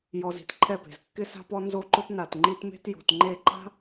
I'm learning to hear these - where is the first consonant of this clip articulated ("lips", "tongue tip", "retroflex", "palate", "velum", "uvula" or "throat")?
palate